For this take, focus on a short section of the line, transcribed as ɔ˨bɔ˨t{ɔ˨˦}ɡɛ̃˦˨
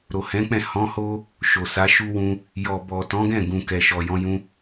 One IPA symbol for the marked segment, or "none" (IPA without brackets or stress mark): ɔ̃˨˦